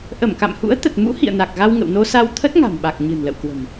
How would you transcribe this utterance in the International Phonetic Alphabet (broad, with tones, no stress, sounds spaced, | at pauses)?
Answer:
ʔ ə˧˩ m k a̰˧˨ m h ṵ˧˥ ə̯ t̪ ə˨˩ t̚ m ṵ˧˥ h ḭ˧˨ ə̯ n a˨˩ k̚ ɣ a˧ w ŋ ə̰˧˨ w n o˧ s a˧ w t̪ʰ ə˦˥ t̚ ŋ a̤˨˩ m ɓ a˨˩ k̚ ɲ ɨ̤˨˩ n l ə̰˧˨ w k w ə̤˨˩ m